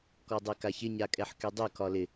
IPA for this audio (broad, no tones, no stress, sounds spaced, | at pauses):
k ɔ dˤ e k a ç ɪ ɲ a kʼ ɛ ħ k y dˤ y k ɒ l ɪ